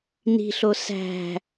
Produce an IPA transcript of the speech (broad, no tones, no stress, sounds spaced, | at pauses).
n i̤ ɬ o s æ̤